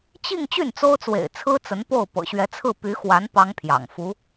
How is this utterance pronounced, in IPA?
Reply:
t͡ɕ i˥˧ ŋ t͡ɕ y˥˩ n t͡s o˥ ʊ̯ t͡s w ḛ˨˩ ɪ̯ t͡sʰ ɹ̩˥ t͡s ə˧˥ n p o˥˩ ʊ̯ p ɤ̰˨˩ ɕ ɥ ɛ˧˥ t͡sʰ ɹ̩˥˩ p y˧˥ x w a˧˥ n p ɑ˥ ŋ pʰ j ɑ̰˨˩ ŋ f u˧˥

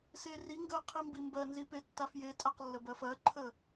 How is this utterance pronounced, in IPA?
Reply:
s e r i ŋ ɡ ɜ qʰ i m b i m b ɜ n z i p e tː a f j e tʼ a q lː ə b ɜ f ɜ ǃʰ ə

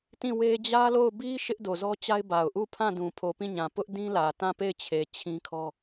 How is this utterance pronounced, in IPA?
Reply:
t ĩ˦˨ w e˦ d͡ʑ ä˦ l o˦˨ ʊ̯ b i˦ ʃ ɪ˦ ʔ d o˨ z ɔ˦ t͡ɕ a˦ ɪ̯ b a˨ ʊ̯ ʔ u˦˨ pʰ ã˦˨ d ũ˨ pʰ o˨ p ĩ˦˨ ɲ ã˨ p ʊ˦ ʔ d ĩ˦ l ä˨ t ã˦˨ p e˦˨ ɪ̯ t͡ɕʰ e˨ t͡ɕʰ ĩ˦ kʰ ɔ˦

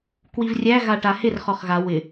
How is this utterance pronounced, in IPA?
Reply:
k w i v rʲ æ ɣ a ʈ a h ɪ r χ ɔ χ ɣ a w ɪ

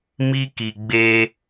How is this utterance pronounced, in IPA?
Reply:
m i˦ k i˨ ɡ͡b e˧

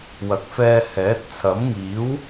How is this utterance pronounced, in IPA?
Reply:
w ɐ˨ k̚ f ɛː˧ h ɛː˨˥ t̚ t͡sʰ ɐ˨˥ m ŋ iː˨˥ w

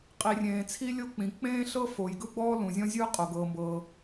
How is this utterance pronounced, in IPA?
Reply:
qʼ i˩ rʲ ẽː˩ t͡sʰ i˥ lʲ o˥ k͡p ĩ˩ k͡p ẽː˥ ɬ ɤ˥ f o˩ j ɡ ɯ˥ ɡ͡b ɔː˥ l ũ˩ zʲ ɔ̃˥ zʲ ɯː˥ qʼ o˩ ɡ ɤː˩ m b ɤː˩

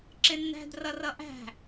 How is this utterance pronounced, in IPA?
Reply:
ǁ ɪ nː æ̤ d r ʌ r ʌ ʔ æ̤

